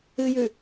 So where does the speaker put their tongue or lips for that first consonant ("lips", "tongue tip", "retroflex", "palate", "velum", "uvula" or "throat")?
palate